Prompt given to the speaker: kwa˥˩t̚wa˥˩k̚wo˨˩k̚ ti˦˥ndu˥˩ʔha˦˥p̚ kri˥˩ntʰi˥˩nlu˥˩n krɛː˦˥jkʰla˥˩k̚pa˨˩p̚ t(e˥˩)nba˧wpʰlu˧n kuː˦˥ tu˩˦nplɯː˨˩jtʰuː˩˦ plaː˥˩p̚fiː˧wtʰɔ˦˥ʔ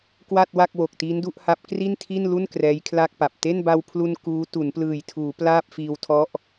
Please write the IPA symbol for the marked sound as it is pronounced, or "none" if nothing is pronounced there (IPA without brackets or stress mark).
e˥˩